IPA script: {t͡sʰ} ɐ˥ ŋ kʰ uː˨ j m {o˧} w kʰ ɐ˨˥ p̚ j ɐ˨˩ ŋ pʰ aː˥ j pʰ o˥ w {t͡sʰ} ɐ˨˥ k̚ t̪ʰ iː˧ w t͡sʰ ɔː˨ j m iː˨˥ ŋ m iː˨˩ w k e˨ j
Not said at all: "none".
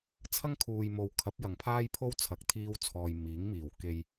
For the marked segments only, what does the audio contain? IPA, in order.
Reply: t͡sʰ, o˨˧, t͡sʰ

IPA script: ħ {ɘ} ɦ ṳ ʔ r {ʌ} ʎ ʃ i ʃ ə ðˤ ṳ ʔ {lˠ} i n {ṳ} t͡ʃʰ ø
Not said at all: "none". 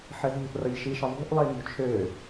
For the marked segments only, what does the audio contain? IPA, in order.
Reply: ɘ, ʌ, lˠ, ṳ

